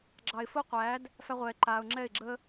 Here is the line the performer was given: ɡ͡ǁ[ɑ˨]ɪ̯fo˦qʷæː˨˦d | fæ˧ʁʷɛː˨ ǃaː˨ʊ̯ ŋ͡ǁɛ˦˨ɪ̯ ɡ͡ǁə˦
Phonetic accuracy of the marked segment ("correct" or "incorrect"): correct